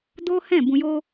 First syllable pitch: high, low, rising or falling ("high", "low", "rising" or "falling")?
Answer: high